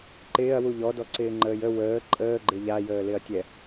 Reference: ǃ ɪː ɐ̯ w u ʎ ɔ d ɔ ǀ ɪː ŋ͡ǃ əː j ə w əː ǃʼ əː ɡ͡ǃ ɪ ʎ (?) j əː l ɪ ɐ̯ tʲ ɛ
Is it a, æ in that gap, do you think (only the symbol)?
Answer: a